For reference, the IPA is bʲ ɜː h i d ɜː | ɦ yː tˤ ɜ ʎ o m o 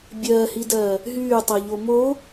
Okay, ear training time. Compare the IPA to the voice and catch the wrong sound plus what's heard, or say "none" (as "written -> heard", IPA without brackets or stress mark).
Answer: none